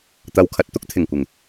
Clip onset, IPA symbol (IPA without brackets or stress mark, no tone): t̪